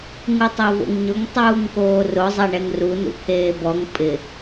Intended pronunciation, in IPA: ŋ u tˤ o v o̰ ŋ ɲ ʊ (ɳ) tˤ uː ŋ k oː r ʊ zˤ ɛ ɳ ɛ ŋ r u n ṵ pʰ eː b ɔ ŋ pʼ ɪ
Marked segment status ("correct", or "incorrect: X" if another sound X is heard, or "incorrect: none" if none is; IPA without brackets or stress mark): incorrect: ŋ